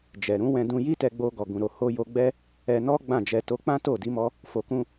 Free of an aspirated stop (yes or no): yes